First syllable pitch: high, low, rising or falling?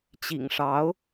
low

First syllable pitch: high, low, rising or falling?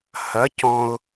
rising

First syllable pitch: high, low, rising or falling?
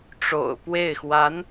low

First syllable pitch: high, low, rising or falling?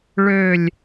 falling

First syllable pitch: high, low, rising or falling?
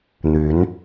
rising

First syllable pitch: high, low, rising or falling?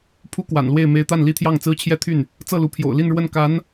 high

